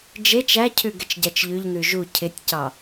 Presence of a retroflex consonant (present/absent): absent